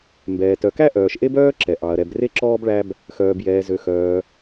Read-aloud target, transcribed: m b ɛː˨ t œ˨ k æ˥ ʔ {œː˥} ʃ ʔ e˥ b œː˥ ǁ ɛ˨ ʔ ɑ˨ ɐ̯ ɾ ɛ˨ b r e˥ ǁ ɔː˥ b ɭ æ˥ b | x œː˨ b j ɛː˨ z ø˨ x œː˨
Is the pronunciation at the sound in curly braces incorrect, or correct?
incorrect